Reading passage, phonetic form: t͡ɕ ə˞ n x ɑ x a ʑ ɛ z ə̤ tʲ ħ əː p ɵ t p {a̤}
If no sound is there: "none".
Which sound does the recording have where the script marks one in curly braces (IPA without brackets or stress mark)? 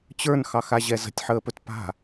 a̤